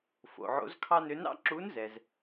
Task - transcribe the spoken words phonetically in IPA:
f o̰˩ ʕ o̰˧˥ z kʰ ɑ˥ n ø˧˥ n ɑ̰˥ ǁ u˧˥ n z ɛ˩ z

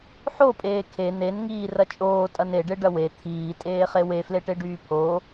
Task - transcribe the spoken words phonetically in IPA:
ħ o pʼ eː kʰ e n e n ŋ iː r ɐ t͡ʃʼ oː tʼ ɐ n e ɖ e ɖ ɐ w e t̪ʰ iː tʼ eː χ e w e f l e ʈ e ɖ yː pʰ oː

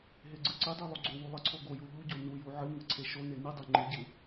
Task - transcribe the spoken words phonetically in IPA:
ɦ e ɡ͡ǀ ɨ ǀ ɨ dˤ e lˠ u ɡ͡ǀ o w u lˠ ɨ ǀʰ o ɡ o j u ʎ u ɟ o n u j u ʕ ɨ ŋ ɨ ǀʰ e ʃ o n e n ɨ dˤ e ŋ͡ǃ ɨ ɟ ɨ

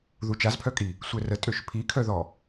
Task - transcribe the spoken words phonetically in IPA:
ð u t͡ʃ a z pʰ œ kʼ i | sʷ ɛ r ə tʼ ø ʃ pʰ i kʰ œ ð ɔ

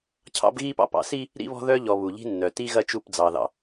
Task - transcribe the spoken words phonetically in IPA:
cʰ ɑ̰˦ b ɣ i˦ p ɑ̰˦ p ɑ̰˨ s i˦ | ɾ ḭ˦ β ɔ̤˦ ð œ˦ ʎ ɔ˨ β u˨ ʎ i̤˦ nː œ˨ t i˦ ɣ ɐ˦ t͡ʃ u˦˨ p d͡z ɑ˨ ð ɑ̰˨

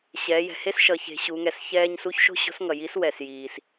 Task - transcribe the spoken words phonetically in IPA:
ɕ ɛː˩˧ j ɛ̤˩ h e˥ s ʃ ʌ˩˧ ç e̤˩˧ ɕ u˩˧ ŋ ɛ˩ s ç ɛː˧ ɲ s u˧˥ ç ʃ o̤˥ ɕ o̤˧˥ s ŋ ʌ˩ j i˧˥ s w ɛ˩ s j iː˩ s

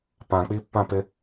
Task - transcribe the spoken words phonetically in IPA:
p ã k͡p i pː ã p ɪ

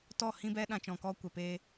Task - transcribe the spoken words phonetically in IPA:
t ɔ˦˨ h ĩ˦ b ɛ˦ ɗ ã˧ t͡ʃ ɔ̃˨ k ɔ˦ kʷ ɛ˨ p eː˧

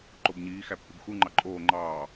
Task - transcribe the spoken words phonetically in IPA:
ǃ o b ɲ iː x æ pː ɯ b x u ŋ͡ǃ ɑ ǃʼ oː ŋ͡ǃ ɑː

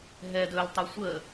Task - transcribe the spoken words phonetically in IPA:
ɦ ɛ d ɵ l tˤ ɵ sʷ ə

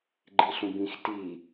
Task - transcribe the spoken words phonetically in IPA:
ɡ͡ǃ i ɬ ũ b ĩ x t i

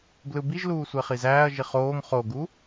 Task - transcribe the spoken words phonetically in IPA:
b l ɯ b i ʒ l uː sʷ e χ i z æː ɐ̯ ʒ i χ oː ŋ χ o ɡ u

